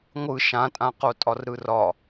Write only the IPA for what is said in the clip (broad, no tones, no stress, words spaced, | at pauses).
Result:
ŋʷɯ ʃãtʼãqo tʼɒrɾɯrɒ